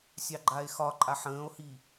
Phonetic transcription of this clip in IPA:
sʲ ɑ ɡ͡ǃ a e̯ x ɒ ǃʼ a ħ ə̃ː o̯ h i

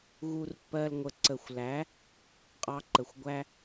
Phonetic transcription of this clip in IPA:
ɣ u˦ r pː ɜ˦ l ŋʷ ə˧ ǀ ə˨ xʷ l æ˨˦ | qʼ ɑ˦ ǃ ə˨ xʷ ɡʷ æ˦

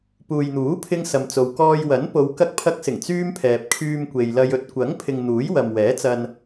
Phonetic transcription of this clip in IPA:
p uː˨ j n̪ uː˨˥ pʰ ɪ˧ ŋ s ɐ˨ m t͡s o˨ w k ɔː˧ j w ɐ˨˥ n p o˨˧ w k ɐ˧ k̚ pʰ ɐ˧ k̚ s ɪ˨˩ ŋ t͡s yː˥ m pʰ ɛː˨ p̚ kʰ yː˧ m kʷ e˨ j l ɐ˧ j ɵ˧ t̚ kʷ ɐ˨˥ ŋ pʰ ɪ˨ ŋ n̪ uː˨˥ j w ɐ˨ m w ɛː˨˥ t͡s ɐ˧ n

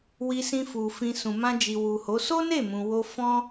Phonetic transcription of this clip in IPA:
w i˧ s ĩ˧ f u˨ f ĩ˧ s ũ˨ m ã˧ d͡ʒ i˨ w u˨ h o˨˦ s o˦ n e˦˨ m ũ˨ w o˧ f ɔ̃˦

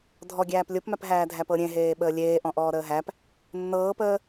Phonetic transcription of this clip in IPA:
dʱ ɔ ɡʲ æː p lʲ o p m æ p ɦ æː dʱ æ p ɤ ɾʲ ẽ ɦ eː ɓ əː lʲ eː ʔ ɔ̃ ʔ ɔː ɾ əː ɦ æ p | nː ɤː p əː

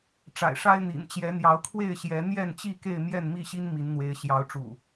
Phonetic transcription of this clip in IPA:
ʈ͡ʂ a̰˨˩ ɪ̯ ʂ a˦ ɪ̯ n̪ ḭ˨˩ n t͡ɕ j ɛ˨˦ n̪ j ɑ˨˦ ʊ̯ kʰ w e˥˨ ɪ̯ ɕ j ɛ˨˦ n̪ j ɛ˥˨ n t͡ɕ i˥˨ k e˥˨ ɪ̯ m j ɛ˥˨ n m i˥˨ ɕ i˦ n m i˨˦ n n̪ w e˨˦ ɪ̯ ɕ j ɑ˨˦ ʊ̯ ʈ͡ʂ ṵ˨˩

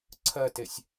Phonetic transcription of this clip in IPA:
ǀʰ ɜ t e sʲ

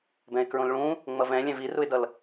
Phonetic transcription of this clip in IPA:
b ɛ̃ ɪ̯ k ɹ õ l ɭ ũ | ŋ͡m ʌ v ɛ̃ lʲ ɛ̃ v i r u ɪ̯ d ʌ l

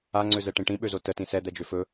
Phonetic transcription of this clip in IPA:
a ŋ͡ǀ ø z ɛ ʈ ĩ ʈ ĩ ɓ ø z o t ə t ĩ s ɛ d̪ ɛ d͡ʒ ø f ɵ

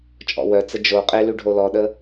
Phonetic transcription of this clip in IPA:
t͡ʃʼ ɔ̰ w œ t͡s ə d͡ʒ o qʼ e l y ɖʱ o l ɔ ɗ ə

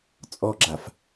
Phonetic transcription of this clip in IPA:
t͡sʼ ɔ ɡ͡ǁ a f

